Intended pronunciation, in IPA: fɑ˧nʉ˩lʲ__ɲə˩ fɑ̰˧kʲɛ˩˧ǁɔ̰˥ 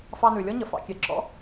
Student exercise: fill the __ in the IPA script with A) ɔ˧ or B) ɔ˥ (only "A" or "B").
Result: B